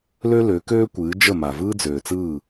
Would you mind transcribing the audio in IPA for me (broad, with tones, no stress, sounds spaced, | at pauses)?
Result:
l ø˦ l ø˨˦ k øː˦ kʷ ɨː˨˦ d͡ʒ ə˦˨ m a˨ v ɯː˦ d͡z øː˨ t͡s ɯː˦˨